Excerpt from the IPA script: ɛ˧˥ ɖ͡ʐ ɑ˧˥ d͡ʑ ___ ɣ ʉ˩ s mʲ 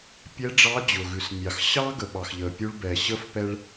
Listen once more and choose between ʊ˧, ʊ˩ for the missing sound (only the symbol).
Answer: ʊ˩